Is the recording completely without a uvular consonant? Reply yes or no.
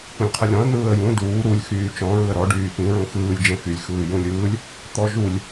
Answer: no